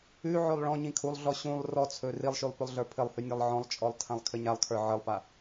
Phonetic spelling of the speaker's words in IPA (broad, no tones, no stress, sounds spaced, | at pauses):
ʉ ʕ ɵ lˠ ɭ ɔ̃ ɲ ĩ kʰ u lˠ ɮ ɔ ɕ ũ lˠ r ɔ t͡sʰ ɵ r i lˠ ʃ ʉ lˠ p ɵ lˠ ɮ ə˞ pʰ ɘ lˠ h ʉ nʲ a lˠ ʕ ɔ̃ lˠ t͡ʃʼ ɔ lˠ tʰ ã lˠ kʰ ɘ ɲ a lˠ kʰ ə˞ ʕ ɘ lˠ p a